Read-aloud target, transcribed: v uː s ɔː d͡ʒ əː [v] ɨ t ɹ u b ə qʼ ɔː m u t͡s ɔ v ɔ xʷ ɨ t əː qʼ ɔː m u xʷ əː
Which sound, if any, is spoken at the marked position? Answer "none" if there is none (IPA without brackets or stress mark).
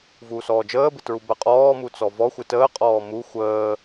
b